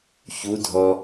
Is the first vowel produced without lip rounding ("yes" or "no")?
no